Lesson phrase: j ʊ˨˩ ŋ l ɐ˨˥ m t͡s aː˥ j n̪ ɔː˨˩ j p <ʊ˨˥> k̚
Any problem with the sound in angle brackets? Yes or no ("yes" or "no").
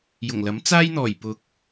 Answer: no